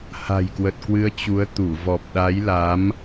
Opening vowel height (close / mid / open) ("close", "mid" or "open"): open